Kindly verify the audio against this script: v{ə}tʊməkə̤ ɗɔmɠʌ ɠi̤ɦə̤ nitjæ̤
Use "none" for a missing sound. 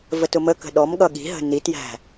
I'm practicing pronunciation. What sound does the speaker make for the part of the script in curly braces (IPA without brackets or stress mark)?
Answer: ə